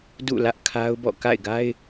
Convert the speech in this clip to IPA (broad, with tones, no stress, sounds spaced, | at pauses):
d ṵ˦˨ l ä˦ ʔ kʰ a˦ ʊ̯ b ɔ̰˦˨ k a̰˦˨ ɪ̯ ɡ a˦ ɪ̯